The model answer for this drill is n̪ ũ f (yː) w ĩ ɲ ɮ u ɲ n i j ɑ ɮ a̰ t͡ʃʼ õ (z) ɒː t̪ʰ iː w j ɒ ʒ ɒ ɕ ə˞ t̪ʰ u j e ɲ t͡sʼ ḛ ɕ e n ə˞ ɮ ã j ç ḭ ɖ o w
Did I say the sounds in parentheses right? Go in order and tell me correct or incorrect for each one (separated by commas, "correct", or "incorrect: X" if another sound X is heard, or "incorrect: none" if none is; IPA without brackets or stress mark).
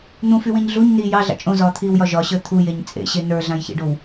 incorrect: y, correct